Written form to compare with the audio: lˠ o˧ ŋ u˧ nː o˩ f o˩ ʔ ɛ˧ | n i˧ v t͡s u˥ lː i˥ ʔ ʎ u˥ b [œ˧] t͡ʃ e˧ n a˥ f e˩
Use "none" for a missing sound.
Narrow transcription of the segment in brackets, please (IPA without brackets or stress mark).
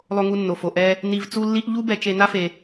ɛ˧